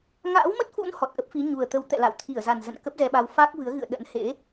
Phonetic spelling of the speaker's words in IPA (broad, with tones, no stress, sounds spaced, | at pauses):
ŋ a̰ː˧˥ w m ə˦˥ t̚ f ṵ˧˥ n h ɔ˨˩ t̚ ʔ ə˦˥ p̚ f i˨˦ ɲ u˨˩ ə̯ t̪ ə˨˦ w t̪ ɛ̰˧˨ l a̰˧˨ w t̪ʰ i˧˩ ə̯ z a˨˩ n z ə̰˧˨ n k ə˦˥ p̚ z ɛ˧ ɓ a˧ w f aː˦˥ k̚ v ɨ˨˦ ə̯ ɣ ɨ̰˧˨ ə̯ ɗ ə̰˧˥ n h ḛ˧˥